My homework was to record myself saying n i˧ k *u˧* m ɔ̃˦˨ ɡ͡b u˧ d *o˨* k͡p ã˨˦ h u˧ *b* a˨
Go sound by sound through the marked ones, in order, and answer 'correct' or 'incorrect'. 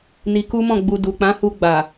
incorrect, incorrect, incorrect

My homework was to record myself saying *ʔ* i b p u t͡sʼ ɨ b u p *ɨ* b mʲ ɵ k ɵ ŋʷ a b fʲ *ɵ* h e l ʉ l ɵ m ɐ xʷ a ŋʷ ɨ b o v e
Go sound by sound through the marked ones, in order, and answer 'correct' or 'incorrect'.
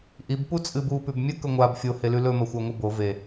correct, incorrect, incorrect

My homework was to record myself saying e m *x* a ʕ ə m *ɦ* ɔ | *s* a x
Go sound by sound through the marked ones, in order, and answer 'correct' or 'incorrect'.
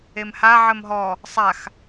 incorrect, correct, incorrect

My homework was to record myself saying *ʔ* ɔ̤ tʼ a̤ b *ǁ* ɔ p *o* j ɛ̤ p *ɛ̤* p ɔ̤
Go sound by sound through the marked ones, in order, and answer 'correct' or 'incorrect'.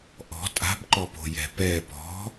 correct, incorrect, incorrect, incorrect

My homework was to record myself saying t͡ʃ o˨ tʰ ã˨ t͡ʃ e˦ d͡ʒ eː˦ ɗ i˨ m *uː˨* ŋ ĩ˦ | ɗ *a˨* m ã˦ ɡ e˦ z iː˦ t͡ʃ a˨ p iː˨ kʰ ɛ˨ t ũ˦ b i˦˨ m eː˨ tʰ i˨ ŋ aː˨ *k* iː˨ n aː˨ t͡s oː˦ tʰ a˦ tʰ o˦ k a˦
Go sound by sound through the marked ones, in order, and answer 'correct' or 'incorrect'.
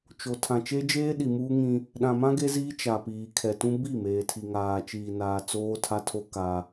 incorrect, incorrect, incorrect

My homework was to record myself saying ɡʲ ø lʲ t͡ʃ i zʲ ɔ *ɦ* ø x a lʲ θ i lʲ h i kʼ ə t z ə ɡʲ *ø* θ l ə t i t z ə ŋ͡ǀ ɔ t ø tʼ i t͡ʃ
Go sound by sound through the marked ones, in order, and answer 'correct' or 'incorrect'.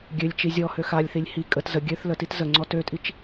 incorrect, correct

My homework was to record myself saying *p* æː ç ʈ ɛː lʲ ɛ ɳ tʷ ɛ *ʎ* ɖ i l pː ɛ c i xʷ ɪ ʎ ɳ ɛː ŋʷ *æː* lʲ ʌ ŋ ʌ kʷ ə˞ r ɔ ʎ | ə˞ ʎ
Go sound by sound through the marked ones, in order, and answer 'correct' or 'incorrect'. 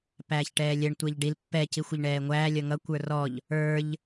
correct, correct, correct

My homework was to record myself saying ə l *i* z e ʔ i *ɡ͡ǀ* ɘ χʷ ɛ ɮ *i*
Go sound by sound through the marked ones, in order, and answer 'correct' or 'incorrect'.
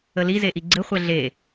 correct, correct, incorrect

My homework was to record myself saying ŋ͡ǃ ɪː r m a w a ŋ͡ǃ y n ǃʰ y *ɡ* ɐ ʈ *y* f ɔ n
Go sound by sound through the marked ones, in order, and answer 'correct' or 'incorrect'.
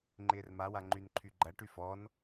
incorrect, correct

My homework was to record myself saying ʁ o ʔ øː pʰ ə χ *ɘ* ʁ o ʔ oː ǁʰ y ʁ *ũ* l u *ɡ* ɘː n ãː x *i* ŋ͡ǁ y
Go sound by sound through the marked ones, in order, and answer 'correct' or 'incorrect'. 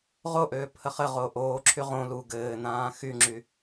correct, incorrect, correct, incorrect

